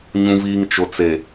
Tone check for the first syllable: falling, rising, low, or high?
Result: low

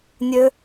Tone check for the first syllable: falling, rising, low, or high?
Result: high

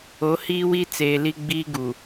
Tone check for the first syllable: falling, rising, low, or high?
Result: rising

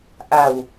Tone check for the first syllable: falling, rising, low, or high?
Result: low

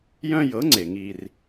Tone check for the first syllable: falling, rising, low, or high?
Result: high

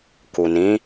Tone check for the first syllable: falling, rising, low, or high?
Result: low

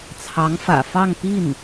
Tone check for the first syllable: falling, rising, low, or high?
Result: rising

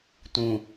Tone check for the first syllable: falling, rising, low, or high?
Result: low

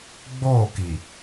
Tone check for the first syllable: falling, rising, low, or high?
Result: falling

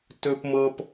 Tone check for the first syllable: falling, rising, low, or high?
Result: high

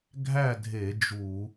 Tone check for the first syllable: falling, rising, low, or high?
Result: falling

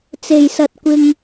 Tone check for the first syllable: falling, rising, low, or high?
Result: low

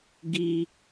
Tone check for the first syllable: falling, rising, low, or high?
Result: high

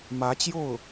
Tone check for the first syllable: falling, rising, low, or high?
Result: rising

